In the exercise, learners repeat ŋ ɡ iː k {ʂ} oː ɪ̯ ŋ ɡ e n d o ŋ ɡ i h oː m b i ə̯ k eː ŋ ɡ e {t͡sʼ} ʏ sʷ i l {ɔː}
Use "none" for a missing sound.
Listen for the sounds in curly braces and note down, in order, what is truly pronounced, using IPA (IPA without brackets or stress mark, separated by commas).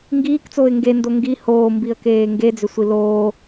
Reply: t͡s, d͡z, oː